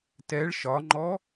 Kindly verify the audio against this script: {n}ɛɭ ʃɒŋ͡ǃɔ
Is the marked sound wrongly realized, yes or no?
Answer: yes